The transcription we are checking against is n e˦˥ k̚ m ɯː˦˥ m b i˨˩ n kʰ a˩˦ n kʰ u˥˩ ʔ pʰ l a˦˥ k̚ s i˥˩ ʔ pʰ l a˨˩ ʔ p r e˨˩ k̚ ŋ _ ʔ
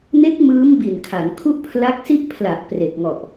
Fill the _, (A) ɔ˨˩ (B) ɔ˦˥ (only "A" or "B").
A